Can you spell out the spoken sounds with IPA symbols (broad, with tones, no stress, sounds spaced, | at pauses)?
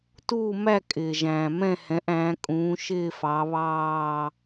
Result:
t uː˦˨ m æ˦˨ kʼ ɪː˩ ʒ æ̃ː˩ m ɛ̃˦˨ h ɛ̃˩˧ ʔ æ̃ː˩˧ kʼ ũː˩˧ ʃ ɪː˦˨ f ɑ˩˧ β ɑː˦˨